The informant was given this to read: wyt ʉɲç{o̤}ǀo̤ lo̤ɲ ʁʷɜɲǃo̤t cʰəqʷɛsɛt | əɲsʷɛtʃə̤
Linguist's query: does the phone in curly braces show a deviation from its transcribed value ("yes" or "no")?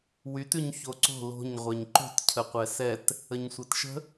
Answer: yes